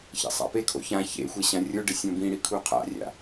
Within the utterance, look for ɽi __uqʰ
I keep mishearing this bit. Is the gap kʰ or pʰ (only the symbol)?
kʰ